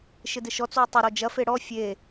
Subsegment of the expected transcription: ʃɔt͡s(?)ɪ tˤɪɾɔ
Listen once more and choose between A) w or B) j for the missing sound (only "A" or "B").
A